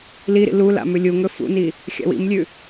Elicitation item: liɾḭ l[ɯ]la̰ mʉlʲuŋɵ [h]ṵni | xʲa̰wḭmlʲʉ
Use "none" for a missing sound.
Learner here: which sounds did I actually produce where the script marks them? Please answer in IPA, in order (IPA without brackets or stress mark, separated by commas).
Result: u, f